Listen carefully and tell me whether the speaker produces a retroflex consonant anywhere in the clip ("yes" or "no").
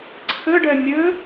yes